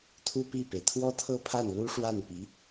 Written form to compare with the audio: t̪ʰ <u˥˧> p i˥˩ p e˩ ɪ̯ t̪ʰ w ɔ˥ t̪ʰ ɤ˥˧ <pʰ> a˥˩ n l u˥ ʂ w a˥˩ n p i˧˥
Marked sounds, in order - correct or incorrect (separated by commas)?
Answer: correct, correct